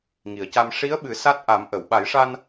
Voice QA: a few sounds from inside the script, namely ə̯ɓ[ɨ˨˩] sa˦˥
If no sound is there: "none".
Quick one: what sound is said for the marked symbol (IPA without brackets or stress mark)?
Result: ɨ˨˩˦